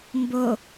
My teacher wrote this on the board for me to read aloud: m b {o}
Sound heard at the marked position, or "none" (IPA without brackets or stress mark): o